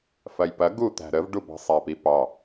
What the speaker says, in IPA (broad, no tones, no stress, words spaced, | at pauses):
fɐjpɐ ɡu t̪æ̤ɾəv ɖubɑ̤sˤæpi pɑ